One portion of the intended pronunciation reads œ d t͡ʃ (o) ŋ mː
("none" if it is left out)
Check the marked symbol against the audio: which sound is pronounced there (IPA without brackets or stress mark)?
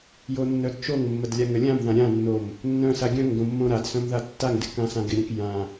o